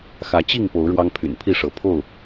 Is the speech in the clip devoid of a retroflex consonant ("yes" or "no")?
no